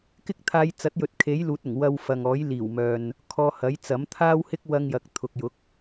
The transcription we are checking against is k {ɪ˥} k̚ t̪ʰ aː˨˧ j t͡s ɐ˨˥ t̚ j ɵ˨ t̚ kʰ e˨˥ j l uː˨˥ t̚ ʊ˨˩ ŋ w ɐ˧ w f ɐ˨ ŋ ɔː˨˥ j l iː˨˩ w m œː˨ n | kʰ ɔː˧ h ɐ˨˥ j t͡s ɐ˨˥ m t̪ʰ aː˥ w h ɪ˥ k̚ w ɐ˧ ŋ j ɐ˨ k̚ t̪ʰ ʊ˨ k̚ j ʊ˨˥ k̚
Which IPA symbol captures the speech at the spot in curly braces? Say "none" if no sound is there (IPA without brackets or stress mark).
ɪ˥